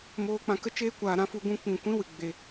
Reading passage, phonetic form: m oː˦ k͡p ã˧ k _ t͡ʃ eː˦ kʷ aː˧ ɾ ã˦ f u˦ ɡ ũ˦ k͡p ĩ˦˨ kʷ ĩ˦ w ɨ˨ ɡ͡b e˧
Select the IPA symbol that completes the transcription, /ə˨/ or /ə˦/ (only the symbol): ə˦